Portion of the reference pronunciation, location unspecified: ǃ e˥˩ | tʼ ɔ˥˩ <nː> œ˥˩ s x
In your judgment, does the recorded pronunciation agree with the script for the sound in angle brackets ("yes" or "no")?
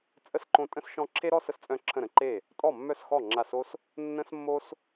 no